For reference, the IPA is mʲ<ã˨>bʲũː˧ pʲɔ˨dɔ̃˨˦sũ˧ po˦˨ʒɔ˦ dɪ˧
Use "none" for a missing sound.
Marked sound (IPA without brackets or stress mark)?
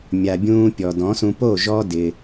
a˨